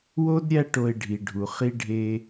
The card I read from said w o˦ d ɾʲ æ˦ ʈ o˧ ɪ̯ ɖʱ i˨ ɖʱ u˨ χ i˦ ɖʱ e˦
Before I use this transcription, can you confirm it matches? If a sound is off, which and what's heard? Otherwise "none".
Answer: none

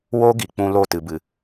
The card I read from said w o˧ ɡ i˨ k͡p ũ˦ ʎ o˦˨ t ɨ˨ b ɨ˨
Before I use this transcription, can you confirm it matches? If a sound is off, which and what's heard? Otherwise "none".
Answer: ʎ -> l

